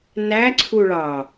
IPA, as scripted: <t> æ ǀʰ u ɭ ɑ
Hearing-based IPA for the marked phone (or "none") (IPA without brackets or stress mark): n